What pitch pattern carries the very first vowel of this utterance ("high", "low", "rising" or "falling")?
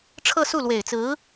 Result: falling